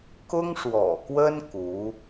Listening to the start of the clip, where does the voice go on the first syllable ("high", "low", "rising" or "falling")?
high